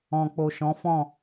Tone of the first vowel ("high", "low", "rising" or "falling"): low